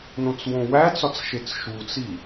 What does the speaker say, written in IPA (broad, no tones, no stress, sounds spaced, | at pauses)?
n õ t͡s w õ w æ t͡s ɒ t͡s ʃ e t͡s ʃ u t͡s i